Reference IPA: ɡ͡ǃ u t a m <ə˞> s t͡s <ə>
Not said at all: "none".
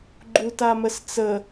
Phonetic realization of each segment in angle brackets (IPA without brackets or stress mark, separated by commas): ə, ə